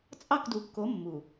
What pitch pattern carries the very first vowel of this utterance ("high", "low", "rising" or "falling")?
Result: falling